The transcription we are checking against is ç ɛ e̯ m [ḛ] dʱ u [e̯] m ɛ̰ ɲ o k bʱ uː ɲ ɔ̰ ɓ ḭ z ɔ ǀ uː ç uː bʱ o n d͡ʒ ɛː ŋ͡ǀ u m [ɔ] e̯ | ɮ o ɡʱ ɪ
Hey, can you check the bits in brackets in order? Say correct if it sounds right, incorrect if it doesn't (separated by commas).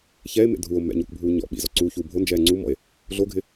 correct, incorrect, incorrect